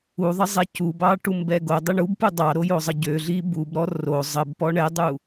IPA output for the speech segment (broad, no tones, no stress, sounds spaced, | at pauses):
u ðˤ ə zˤ ɛ c u b ɑ ʈ u m b ɛ ɡ o dˤ ə ɳ u b p u dˤ ɑ ɾ o j o zˤ ə ɟ ø ɮ i b u b ɾ ɔ r o zˤ ə b p ɔ ɳ ɛ dˤ u